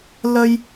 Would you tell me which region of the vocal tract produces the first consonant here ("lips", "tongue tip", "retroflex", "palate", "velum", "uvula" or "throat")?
tongue tip